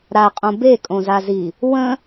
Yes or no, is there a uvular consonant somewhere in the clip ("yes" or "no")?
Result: yes